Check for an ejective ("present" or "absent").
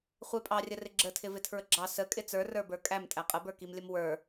present